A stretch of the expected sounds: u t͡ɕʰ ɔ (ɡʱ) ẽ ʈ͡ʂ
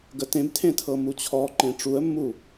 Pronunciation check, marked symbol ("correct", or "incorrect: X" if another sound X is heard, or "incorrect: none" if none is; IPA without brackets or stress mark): incorrect: ǃ